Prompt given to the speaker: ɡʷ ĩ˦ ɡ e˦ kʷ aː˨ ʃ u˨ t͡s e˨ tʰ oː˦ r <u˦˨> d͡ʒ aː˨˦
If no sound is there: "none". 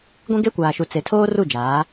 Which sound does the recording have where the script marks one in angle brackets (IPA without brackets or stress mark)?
u˦˨